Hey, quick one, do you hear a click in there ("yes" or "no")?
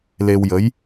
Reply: no